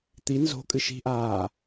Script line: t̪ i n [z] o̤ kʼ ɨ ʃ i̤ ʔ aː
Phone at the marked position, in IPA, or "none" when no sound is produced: z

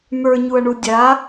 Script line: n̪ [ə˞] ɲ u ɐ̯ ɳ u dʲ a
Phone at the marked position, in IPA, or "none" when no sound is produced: ə˞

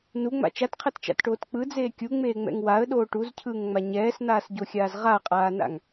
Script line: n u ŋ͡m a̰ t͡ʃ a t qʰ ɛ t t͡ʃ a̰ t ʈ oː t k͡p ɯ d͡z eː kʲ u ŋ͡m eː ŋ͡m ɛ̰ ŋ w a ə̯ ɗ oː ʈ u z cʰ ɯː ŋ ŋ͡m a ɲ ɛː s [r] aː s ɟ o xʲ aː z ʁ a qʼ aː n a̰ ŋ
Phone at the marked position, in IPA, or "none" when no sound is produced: n̪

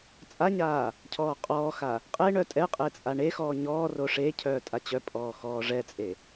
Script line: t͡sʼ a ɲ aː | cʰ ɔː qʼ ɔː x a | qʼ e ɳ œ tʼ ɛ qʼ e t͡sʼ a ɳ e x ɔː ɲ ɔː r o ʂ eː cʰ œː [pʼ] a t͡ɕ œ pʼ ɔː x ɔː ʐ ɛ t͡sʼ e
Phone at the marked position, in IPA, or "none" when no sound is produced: tʼ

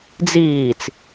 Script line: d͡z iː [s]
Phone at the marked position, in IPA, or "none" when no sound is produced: t͡s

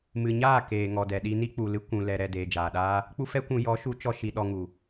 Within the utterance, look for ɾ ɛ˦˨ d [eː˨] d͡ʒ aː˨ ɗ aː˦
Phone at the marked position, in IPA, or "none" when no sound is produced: eː˨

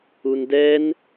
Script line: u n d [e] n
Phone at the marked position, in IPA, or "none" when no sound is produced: ɛ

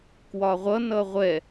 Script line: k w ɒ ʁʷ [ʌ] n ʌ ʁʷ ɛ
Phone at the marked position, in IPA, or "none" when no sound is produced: ʌ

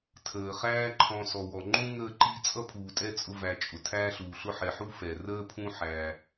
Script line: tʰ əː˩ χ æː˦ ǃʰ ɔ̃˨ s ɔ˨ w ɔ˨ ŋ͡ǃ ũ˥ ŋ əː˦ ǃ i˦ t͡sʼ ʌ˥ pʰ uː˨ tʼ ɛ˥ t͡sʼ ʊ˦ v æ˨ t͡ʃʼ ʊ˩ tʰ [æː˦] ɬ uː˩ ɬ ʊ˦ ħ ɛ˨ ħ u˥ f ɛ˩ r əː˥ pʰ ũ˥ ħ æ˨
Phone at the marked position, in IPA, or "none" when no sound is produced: æː˦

